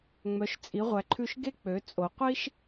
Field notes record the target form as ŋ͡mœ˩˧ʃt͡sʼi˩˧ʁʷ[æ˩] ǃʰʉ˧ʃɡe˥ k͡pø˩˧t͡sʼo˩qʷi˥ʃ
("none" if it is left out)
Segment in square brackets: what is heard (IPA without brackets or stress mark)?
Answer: æ˩